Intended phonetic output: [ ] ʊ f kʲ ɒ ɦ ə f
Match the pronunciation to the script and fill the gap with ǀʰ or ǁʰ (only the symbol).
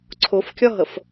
ǀʰ